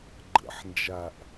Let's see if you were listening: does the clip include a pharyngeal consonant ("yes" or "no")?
yes